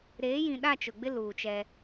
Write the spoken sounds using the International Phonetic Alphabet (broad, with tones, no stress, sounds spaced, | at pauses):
ɾ eː˨˦ j ĩ˨ ɗ a˦˨ t͡ʃ ʊ˨ ɡ͡b ɪ˦ l uː˨ t͡ʃ ɛ˦